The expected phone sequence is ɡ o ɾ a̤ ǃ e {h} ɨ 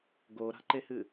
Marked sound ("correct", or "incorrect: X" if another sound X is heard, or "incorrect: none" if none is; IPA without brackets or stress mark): correct